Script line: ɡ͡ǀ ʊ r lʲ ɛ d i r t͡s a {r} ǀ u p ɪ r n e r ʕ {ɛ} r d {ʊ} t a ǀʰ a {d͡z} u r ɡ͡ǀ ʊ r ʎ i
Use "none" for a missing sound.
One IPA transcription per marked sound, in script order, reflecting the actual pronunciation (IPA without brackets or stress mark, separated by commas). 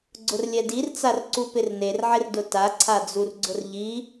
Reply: r, ɪ, ʊ, d͡z